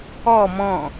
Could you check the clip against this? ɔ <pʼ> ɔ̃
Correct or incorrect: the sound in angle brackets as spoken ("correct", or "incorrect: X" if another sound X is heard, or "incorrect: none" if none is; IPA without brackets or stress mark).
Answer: incorrect: m